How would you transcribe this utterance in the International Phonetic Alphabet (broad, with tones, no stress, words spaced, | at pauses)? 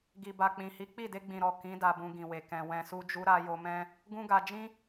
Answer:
ɡi˨ba˨k͡pĩ˨hi˨˦ k͡pi˦˨de˧ɡ͡bĩ˨ɾɔ˨ kĩ˨˦ da˧bũ˧ɡĩ˨we˨ kɛ̃˨wɛ̃˨su˧d͡ʒu˧ ɾa˧jo˧mɛ̃˦ | ɡũ˦ɡa˧ d͡ʒĩ˦